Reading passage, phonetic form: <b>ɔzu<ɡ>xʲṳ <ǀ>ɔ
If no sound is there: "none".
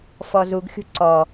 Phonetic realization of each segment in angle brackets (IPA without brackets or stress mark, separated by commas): f, ɡ, ǀ